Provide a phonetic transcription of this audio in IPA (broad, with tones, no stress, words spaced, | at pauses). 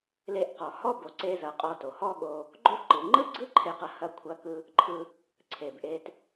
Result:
le˧ʔqɔ˩ hɔ˥ bo˩ǀe˧zɐ˩ qʼɔ˧to˩hɔ˥ɠo˧ | ɡ͡ǃo˥ ǃɯ˩ŋ͡ǃɯ˥ɡ͡ǀɯ˥ ǃʰe˧qɐ˧ hɐ˧kʷʰɐ˧kɯ˧ | ǃʰɯ˧ | ǀʰe˩bʔe˧t